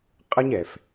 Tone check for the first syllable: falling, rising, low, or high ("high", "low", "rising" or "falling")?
high